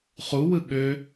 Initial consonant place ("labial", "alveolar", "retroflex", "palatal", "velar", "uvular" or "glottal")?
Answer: uvular